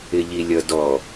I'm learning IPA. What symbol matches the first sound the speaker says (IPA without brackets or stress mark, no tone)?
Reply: ɪ